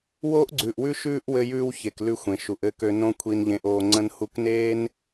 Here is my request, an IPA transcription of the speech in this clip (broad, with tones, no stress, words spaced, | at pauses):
woː˦ʔɡ͡ǀʉː˨ʔwʉ˦ ʃʉː˦ʔ wɘ˧jʉː˧w çe˨klʉ˧ xʷẽ˨ʃu˨ʔɘ˦˨kø˧ nõ˧ kʷʰi˧nʎẽ˧ʔ oː˧ ŋ͡ǀə̃˧nhu˧kneː˦n